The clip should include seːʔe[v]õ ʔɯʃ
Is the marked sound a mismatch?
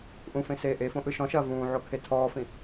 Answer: yes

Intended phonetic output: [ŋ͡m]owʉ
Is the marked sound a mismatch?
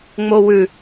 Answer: no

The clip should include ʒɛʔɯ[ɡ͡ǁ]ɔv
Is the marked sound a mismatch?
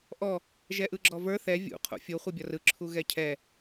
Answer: no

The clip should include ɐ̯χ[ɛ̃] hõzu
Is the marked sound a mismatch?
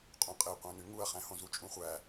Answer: yes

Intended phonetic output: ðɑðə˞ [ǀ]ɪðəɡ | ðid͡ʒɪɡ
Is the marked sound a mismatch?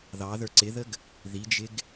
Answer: no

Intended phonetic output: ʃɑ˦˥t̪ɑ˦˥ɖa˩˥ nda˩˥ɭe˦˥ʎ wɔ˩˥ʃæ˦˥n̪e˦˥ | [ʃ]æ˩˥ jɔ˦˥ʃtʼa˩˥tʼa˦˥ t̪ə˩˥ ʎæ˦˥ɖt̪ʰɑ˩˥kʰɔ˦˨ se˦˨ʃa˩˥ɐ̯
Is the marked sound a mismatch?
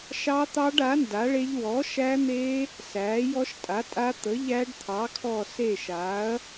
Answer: yes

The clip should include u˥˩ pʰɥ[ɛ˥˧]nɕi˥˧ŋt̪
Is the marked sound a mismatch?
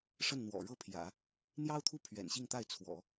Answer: yes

